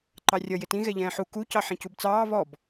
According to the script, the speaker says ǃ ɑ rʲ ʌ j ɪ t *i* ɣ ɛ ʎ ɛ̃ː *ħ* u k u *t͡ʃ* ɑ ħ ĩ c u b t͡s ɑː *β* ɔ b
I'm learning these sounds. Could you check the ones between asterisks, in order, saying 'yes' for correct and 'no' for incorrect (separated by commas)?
no, yes, no, yes